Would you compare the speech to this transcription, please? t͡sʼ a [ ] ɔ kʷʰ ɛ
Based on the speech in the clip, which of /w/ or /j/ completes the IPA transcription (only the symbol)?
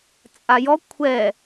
j